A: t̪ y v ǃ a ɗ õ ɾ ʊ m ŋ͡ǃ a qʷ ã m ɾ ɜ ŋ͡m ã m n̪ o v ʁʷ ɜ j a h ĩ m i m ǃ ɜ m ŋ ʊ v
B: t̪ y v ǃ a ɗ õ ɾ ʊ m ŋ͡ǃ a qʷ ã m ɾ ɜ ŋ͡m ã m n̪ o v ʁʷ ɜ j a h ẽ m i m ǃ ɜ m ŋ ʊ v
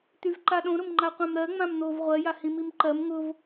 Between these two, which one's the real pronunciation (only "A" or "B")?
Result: A